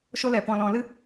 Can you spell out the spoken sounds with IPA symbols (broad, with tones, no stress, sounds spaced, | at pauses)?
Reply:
ʃ o˧ l ɛ˨ p ɔ̃˨ l ɔ̃˨ l ɨ˧